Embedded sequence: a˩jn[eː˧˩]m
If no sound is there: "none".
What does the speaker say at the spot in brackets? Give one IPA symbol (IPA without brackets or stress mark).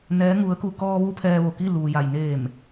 eː˧˩